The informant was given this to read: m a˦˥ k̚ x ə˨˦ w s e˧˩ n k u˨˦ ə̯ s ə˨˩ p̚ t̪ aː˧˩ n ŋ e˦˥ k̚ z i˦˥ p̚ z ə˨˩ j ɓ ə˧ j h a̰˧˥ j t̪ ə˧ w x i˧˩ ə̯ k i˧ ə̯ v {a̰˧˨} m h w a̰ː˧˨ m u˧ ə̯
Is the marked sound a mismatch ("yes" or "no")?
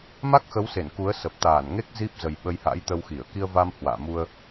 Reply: yes